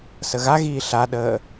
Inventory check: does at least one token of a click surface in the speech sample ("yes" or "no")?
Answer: no